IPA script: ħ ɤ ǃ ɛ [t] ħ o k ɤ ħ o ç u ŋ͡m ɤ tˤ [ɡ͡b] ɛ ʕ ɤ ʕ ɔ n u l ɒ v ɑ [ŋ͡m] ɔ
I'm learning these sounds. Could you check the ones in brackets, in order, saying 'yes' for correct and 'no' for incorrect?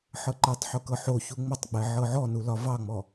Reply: no, yes, yes

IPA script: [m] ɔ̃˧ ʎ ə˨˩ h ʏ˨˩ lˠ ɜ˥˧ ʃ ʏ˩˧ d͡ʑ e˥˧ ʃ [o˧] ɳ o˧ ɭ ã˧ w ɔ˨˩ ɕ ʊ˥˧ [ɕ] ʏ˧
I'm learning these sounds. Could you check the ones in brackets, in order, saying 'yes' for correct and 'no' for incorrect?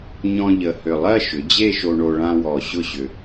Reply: no, yes, yes

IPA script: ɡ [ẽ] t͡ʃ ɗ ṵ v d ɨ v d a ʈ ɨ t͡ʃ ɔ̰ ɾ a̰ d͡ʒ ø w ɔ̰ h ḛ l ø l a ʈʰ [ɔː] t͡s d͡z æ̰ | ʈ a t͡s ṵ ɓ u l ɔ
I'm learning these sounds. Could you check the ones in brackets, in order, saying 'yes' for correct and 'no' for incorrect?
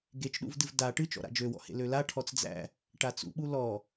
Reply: no, no

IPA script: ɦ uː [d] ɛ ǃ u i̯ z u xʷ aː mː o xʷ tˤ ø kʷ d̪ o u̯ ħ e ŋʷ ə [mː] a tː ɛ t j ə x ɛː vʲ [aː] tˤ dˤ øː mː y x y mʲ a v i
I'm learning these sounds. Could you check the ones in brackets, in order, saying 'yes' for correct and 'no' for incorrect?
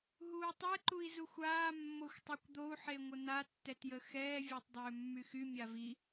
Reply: no, no, no

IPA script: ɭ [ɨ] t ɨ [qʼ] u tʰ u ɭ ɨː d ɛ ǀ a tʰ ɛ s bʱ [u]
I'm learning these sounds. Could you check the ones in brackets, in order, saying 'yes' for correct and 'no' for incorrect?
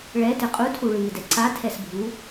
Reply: no, yes, yes

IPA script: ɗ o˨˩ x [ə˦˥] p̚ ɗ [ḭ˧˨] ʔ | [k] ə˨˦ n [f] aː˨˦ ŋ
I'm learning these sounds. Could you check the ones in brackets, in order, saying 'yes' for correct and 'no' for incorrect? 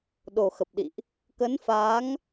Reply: no, yes, yes, yes

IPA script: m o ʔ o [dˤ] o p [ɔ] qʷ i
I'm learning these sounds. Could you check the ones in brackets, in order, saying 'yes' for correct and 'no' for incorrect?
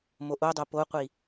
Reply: yes, no

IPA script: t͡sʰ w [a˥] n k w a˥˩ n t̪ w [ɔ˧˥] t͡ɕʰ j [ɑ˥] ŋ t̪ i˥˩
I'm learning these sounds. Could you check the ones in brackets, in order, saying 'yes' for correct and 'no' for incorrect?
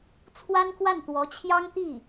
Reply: yes, yes, yes

